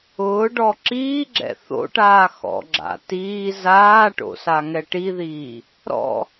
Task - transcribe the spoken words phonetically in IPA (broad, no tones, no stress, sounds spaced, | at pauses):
ʊː ɖ ɔ ǁ iː ɡ͡ǁ ɛ̰ θ o̰ ʈ aː x ɔ̰ ɡ͡ǁ a̰ t iː z aː ʈ o̰ s a ŋ ɛ ʈ i ð iː | ɾ ɔ̰